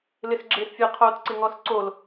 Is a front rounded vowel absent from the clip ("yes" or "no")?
yes